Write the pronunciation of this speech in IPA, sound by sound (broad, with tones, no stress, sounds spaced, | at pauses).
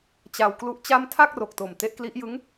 t͡ɕ a˧ w k l u˦˥ ʔ t͡ɕ a˥˩ m tʰ a˥˩ k̚ r o˨˩ k̚ t o˨˩ m t e˦˥ ʔ k l i˦˥ ʔ j ɯ˦˥ ŋ